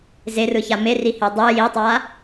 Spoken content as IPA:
z e r ɯ ç a m e r i h e dˤ ɯ j i tˤ a

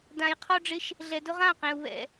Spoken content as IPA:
d ã˧ j qʰ ɔ˦ ɖ͡ʐ ɪ˦ ʃ | ɮ ɛ˧ d ʊ˦ ʁ ã˦˨ q ẽ˧ u̯ β ɛ̰˦

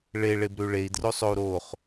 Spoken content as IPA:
ɭ e ɭ e b ɾ ʉ ɭ e i̯ d r o sˤ o u̯ ɾ o χ

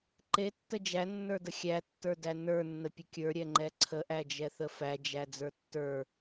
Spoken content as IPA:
ǃ e tː ə d͡ʒ æ nː ə˞ d ə xʲ æ tː ə˞ d æ n ə˞ nː ə pʲ ə kʲ ə˞ ɾʲ ɛ ŋ͡ǃ ɛ ǀʰ ə ʔ æ d͡ʒ ɛ θ ə f æ d͡ʒ æ d͡z ə˞ tː ə˞

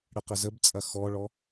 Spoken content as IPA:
ɽ ə q ə z ə b t͡sʼ ɐ x ɔ ɭ ɔ

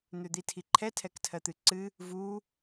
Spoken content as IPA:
n̪ ø d̪ i tʰ i ǃʰ ɛ tʰ ɛ k tʰ ɜ t̪ ɨ ǀ ɨ | v u

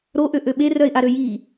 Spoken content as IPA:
ɾ o ʔ ø ʔ ø ɓ e r œ ɪ̯ ʔ a ɾ ø j i

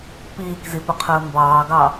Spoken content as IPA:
p iː k z i p ə qʰ əː m b ɑː ɡ ɑ

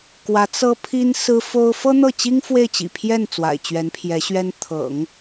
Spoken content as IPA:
k w ä˧˥ t͡s ɤ˥ pʰ i˥ n s ɹ̩˥ f o˥ ʊ̯ f ɤ˥ n̪ ɤ˥˩ t͡ɕ i˥ ŋ f w e˥˩ ɪ̯ t͡ɕ ḭ˨˩ pʰ j ɛ˥˩ n t͡s w a̰˨˩ ɪ̯ t͡ɕ ɥ ɛ˧˥ n pʰ j ɛ˧˥ ɕ ɥ ɛ˥ n t̪ʰ ɤ̰˨˩˦ ŋ

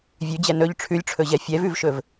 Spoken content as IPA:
vʲ ʉ d͡ʑ ɛ n ɵ ʎ ʈ͡ʂʰ ʉ lʲ ʈ͡ʂʰ ɵ ʑ ɛ fʲ ɛ v ʉ v ʃ ɵ v

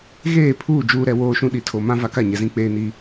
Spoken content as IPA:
ɣ eː˦˨ pʰ uː˦˨ d͡ʒ uː˦ ɾ ɛ˦ w oː˦ ʃ ũ˦ ɗ i˨ tʰ o˨ m ã˦ v a˦ k a˦˨ ɲ ɛ˨ z ĩ˦ k͡p eː˦ n i˦

